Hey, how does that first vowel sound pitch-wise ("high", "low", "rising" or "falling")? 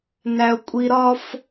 high